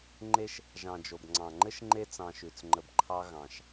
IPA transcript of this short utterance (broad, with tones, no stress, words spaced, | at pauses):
ŋ͡ǃe˦ʃ | ʒɑ̃˩ d͡ʒo˩bŋ͡ǀɑ̃˩ŋ͡ǃɘ˥ʃŋ͡ǃe˦ t͡sɑ̃˨ʃʉ˩t͡sŋ͡ǃə˨bǃʰɑ˦ ɣɑ̃˩ʃ